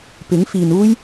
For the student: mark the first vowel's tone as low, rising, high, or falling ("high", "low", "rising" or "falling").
rising